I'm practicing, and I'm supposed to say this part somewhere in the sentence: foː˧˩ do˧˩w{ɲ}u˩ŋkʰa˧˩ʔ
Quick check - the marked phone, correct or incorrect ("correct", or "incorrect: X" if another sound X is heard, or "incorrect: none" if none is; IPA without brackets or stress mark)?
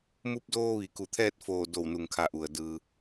incorrect: n